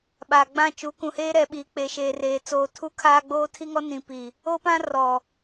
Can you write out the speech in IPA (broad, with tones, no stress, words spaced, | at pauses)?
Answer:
ɓaː˨ɡ͡bã˦˨t͡ʃu˨˦ kũ˨heː˦ɾɛ˨ ɓiː˨k͡pe˨ ʃeː˨reː˨t͡soː˨ tʰu˦kʰaː˦ɡ͡boː˦ tʰi˦ŋɔ˦nĩ˨ pi˨ | o˦pã˦rɔ˨